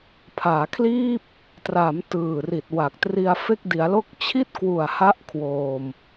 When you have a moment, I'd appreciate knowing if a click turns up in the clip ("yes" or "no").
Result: no